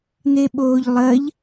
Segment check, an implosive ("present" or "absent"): present